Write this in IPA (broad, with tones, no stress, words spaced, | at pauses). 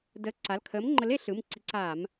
dəː˨˥ǀa˩˧˩l kʰəː˨˥m ŋ͡ǃə˨˥le˩˧ɬɯ˩˧˩m ǀi˨˥ǀaː˧˩˧m